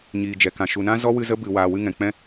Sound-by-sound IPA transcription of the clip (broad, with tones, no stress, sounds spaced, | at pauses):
ɲ iː˨ d͡ʒ ɛ˨ k ã˨ ʃ u˨ n ã˦ z ɔ˦ w ɨ˧ z ə˦ b ɨ˨ w aː˨ w ɨ˧ ŋ ɛ̃˨ k͡p ɛ̃˦